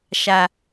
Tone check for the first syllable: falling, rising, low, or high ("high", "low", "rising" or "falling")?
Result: low